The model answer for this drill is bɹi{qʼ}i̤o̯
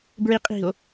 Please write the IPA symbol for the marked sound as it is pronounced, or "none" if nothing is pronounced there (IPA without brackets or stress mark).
qʼ